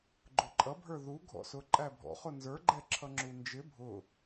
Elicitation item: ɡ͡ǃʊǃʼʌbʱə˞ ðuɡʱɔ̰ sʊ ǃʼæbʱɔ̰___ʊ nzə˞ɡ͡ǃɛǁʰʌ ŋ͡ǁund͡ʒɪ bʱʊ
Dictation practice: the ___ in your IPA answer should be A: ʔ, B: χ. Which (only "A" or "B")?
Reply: B